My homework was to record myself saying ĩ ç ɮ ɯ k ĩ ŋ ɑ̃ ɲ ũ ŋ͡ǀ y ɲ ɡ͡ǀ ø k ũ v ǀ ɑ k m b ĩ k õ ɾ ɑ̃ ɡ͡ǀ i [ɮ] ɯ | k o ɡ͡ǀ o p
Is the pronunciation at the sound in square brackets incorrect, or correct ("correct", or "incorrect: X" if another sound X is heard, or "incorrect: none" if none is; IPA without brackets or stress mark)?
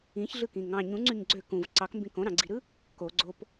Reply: incorrect: ɾ